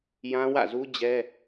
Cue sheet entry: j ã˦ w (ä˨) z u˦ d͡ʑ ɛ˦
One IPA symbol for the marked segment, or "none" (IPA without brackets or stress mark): ä̰˦˨